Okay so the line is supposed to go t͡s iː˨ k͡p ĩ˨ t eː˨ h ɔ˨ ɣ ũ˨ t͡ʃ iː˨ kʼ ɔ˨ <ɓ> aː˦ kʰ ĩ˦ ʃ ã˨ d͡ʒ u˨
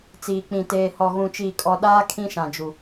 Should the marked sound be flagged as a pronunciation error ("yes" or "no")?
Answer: yes